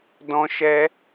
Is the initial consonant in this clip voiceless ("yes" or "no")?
no